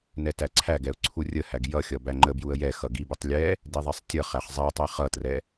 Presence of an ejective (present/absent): absent